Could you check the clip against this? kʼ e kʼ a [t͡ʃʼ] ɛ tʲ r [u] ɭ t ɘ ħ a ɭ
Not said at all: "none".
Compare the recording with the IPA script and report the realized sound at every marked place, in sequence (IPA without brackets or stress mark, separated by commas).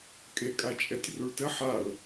t͡ʃʼ, u